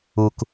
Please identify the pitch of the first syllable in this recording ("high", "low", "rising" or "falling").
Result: low